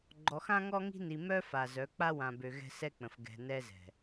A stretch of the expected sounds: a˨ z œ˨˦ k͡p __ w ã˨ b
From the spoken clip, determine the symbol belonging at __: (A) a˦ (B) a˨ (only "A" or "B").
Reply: A